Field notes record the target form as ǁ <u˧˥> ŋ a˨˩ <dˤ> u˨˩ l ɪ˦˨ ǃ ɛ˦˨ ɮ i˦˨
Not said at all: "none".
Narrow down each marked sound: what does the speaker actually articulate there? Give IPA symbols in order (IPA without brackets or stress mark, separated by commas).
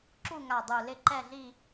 u˦˨, dˤ